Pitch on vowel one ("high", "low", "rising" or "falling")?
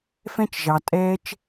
high